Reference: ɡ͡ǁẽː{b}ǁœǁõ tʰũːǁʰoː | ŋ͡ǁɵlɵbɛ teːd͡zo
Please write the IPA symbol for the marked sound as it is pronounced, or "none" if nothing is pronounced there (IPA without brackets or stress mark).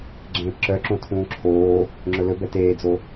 p